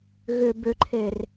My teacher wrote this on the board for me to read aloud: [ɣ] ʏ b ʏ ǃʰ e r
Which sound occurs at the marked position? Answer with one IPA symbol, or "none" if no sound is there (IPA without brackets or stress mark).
ɣ